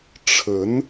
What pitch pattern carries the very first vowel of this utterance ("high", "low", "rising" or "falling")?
rising